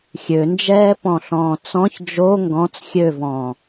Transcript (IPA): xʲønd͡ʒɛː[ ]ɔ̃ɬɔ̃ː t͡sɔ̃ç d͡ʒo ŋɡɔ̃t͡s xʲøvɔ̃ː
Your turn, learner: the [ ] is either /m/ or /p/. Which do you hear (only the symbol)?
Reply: p